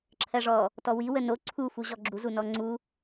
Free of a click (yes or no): no